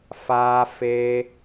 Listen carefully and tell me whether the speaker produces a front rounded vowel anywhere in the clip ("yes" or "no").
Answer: no